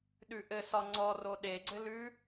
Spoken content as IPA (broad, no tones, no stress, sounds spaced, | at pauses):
ɗ ʉ ʔ ɘ s ɒ ŋ͡ǀ ɔ r o ɗ e ɡ͡ǀ ɘ l ʉ